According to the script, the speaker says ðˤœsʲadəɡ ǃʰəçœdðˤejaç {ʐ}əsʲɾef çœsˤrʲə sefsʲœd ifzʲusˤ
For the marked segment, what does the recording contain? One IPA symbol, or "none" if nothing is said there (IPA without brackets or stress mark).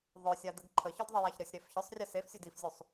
ɾ